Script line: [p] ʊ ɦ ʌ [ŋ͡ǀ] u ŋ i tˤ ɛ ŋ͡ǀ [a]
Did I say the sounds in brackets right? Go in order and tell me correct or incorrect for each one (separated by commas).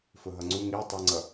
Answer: incorrect, correct, incorrect